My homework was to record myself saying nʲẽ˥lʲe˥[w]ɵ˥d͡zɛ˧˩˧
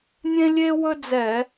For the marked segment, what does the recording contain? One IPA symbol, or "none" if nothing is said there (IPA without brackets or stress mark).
w